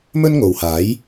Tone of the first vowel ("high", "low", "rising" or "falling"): high